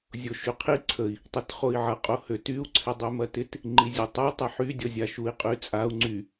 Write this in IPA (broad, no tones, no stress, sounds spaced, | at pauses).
zʲ o ʃ y qʰ i ǀʰ ə i̯ | tˤ e t χ o i̯ ʕ ɐ qʼ o h ø t y u̯ ǀʰ ɪ dˤ y m ɐ t ɪ t | ŋ͡ǃ i zʲ e tˤ ə u̯ tˤ ɐ ħ y dʲ ɔ zʲ a ʃ u i̯ qʼ y t͡sʼ a u̯ ŋ͡ǀ y